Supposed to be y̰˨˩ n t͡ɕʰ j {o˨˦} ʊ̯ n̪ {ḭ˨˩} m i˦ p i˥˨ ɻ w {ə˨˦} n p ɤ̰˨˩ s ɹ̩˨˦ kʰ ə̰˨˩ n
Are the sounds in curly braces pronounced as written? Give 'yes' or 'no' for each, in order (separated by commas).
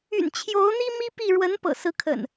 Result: yes, no, yes